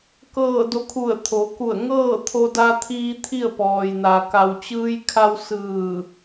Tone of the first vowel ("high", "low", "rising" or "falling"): falling